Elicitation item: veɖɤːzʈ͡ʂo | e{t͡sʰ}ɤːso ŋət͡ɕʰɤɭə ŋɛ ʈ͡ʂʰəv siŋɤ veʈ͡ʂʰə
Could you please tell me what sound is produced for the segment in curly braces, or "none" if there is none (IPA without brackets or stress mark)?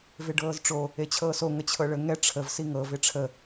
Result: t͡ɕʰ